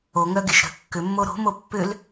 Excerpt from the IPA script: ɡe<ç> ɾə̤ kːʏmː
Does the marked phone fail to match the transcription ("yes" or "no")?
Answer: yes